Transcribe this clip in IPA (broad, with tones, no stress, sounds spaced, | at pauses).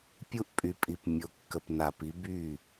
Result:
pʲ u˦ ʔ pʼ y˨ pʼ i˨ p mʲ o˨ kː ə˨ p n a˨ p i˨˦ b y˦˨